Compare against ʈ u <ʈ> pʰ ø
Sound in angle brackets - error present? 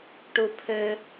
yes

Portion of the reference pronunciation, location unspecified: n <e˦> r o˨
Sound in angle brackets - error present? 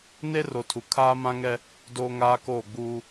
no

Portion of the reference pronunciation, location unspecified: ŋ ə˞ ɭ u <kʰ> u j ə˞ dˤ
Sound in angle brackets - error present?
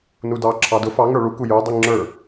yes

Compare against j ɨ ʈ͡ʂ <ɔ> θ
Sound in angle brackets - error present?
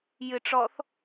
no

